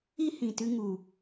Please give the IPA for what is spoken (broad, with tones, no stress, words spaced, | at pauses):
i˦hĩ˨tɨ˧ŋu˨